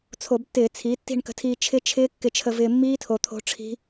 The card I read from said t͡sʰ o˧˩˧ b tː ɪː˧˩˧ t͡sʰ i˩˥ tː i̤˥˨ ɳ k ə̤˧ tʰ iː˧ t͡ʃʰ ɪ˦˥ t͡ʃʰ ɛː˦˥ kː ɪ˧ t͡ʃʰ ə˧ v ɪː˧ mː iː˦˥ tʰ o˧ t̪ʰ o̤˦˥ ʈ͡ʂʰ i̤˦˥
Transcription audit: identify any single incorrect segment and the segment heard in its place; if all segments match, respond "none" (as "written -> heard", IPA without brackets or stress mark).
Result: ɛː˦˥ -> ɪː˦˥